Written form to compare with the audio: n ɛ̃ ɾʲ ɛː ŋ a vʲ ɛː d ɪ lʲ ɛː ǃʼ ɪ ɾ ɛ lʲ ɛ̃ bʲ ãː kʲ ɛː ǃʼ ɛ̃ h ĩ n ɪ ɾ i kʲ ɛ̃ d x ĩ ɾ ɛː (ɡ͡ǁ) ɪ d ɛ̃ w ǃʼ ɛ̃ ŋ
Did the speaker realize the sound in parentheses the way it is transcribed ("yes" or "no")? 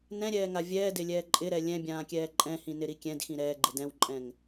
no